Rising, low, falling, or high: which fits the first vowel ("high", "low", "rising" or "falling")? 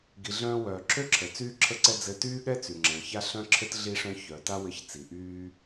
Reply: low